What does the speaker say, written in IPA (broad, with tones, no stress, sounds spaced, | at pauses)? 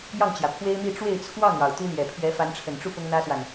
j ɑ˥˩ ŋ t͡ɕ j ä˩ pʰ w e˥ ɪ̯ m i˥˧ ʈ͡ʂ w e˥˧ ɪ̯ t͡sʰ w ɑ˥˩ ŋ ɻ ɑ˩ ʊ̯ t̪ u˥ l j ɛ˨˩ pʰ ɥ ɛ˧˥ f a˧˥ n ʈ͡ʂʰ ə˨˩ n ʈ͡ʂ u˥˩ p ʊ˥ ŋ n̪ ä˥ s w a˨ n